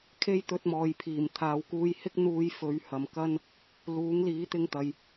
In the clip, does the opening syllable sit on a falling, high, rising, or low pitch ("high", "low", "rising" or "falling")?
high